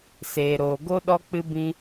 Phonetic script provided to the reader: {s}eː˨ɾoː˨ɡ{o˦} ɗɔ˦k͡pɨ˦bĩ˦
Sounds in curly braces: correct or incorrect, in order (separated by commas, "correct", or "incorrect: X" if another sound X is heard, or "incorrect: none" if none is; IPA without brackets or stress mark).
correct, correct